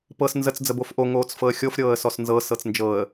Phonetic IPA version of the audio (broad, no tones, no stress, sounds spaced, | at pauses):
p ɤ s n z ə t͡s d͡z ə b o f ʔ o ŋ oː t͡s f ɤ ə̯ xʲ o f ɾʲ ɤː ə̯ s ɔ s n z ɤ s ɤ t͡s n d͡ʒ ɤ ə̯